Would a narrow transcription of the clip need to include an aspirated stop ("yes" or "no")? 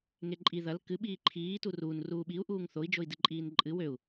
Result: yes